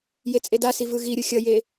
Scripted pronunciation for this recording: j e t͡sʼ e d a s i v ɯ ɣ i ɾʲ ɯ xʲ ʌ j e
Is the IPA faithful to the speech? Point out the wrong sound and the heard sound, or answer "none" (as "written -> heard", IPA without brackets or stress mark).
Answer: none